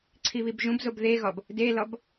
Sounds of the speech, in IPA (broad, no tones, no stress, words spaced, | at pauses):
ǀʰiβibʒũbzob ðeɣɒb | delɒb